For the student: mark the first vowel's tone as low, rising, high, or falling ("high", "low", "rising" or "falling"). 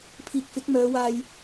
low